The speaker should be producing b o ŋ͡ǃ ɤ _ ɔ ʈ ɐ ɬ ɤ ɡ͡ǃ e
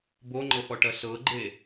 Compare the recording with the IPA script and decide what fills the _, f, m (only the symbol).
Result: f